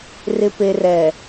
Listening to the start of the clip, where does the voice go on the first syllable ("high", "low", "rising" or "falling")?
low